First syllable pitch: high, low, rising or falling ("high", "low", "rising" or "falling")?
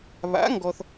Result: rising